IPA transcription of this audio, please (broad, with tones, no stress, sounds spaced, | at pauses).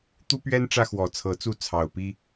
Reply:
t̪ u˦ p ɥ ɛ˦ n ʈ͡ʂ ä˦ x w ɔ˨˩ t͡sʰ ɤ˨˦ t͡s u˥˨ t͡sʰ ɑ˨˩ ʊ̯ p i˦